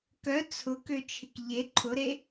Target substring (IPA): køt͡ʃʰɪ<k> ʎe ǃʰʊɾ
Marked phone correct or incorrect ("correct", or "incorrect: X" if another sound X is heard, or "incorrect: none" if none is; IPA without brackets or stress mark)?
correct